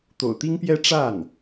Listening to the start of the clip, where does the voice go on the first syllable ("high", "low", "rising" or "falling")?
low